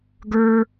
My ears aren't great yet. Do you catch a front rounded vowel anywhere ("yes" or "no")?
no